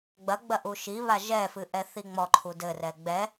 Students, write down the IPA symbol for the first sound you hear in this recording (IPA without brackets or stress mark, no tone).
ɡ͡b